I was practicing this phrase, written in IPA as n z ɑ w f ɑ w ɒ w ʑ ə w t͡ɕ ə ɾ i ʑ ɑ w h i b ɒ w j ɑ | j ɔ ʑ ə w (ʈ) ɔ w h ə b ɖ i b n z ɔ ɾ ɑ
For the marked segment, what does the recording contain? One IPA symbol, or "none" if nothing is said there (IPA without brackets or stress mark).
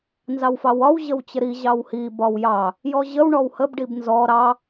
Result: ɳ